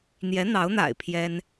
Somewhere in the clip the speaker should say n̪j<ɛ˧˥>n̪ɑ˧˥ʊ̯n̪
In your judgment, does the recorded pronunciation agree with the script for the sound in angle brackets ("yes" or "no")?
yes